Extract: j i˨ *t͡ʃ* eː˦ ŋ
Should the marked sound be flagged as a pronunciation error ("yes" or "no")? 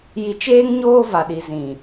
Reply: no